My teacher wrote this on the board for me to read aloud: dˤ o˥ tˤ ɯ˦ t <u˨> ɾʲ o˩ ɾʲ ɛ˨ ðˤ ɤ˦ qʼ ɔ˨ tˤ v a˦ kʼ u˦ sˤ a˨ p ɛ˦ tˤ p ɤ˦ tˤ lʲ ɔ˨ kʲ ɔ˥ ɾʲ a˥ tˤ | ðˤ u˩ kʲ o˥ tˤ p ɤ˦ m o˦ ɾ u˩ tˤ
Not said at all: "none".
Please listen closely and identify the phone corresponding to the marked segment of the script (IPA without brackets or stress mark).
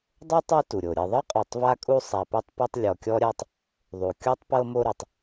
u˩